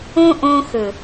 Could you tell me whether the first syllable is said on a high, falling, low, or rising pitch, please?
high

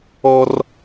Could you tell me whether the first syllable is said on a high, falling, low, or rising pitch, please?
high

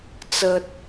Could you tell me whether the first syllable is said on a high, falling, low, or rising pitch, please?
high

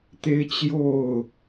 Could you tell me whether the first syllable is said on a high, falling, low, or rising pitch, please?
high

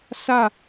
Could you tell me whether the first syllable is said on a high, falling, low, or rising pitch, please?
falling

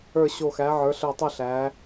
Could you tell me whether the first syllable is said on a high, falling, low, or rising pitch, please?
low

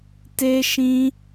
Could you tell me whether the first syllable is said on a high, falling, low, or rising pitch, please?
high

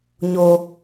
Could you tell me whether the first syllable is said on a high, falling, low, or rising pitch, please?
low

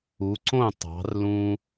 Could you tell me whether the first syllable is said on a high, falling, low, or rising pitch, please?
rising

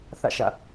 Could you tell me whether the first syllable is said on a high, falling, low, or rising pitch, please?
falling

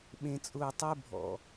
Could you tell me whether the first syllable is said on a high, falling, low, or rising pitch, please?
low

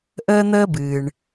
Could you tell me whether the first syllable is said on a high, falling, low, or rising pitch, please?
high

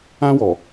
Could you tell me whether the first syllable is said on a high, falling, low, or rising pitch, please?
high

